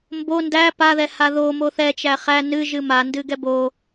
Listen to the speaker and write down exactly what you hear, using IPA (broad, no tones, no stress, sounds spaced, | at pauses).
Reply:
m b o n d æ p a ð ɛ h a ð o m o θ ɛ t͡ʃ æ χ æ n ɨ ʒ ɨ m a n d ɨ ɡ ɛ b o